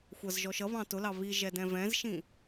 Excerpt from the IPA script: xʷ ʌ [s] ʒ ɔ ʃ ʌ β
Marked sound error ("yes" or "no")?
yes